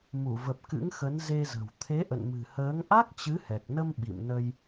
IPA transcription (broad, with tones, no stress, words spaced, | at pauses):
mu˧˩və˨˩p̚kɨ̰˧˥ŋxə˨˦n ze˧zə̤˨˩w t̪ʰe˨˦ʔə̰˧˨nmɨ̤˨˩həː˨˦ŋ ʔa˦˥k̚ t͡ɕɨ˨˦hɛ˨˩k̚nə˧m ɓḭ˧˨mnə˧j